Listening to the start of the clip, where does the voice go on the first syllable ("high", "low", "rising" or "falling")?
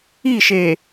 falling